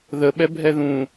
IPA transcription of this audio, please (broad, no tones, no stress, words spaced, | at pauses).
ðəɓɛ bʱɛðũ